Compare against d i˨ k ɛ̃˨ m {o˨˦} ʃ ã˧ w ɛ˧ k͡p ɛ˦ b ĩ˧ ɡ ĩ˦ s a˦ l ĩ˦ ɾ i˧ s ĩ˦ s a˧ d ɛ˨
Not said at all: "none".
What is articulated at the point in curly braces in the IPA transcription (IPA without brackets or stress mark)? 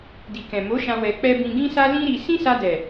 o˨˦